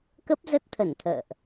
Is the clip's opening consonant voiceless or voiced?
voiceless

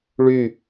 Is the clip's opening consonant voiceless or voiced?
voiced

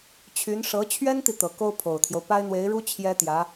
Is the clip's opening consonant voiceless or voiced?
voiceless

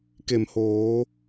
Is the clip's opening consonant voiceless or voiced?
voiceless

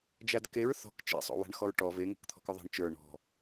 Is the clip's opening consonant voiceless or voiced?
voiced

